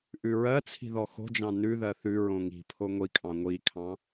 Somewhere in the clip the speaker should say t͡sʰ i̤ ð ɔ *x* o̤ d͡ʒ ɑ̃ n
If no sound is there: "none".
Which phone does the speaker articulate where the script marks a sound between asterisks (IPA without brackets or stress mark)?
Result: x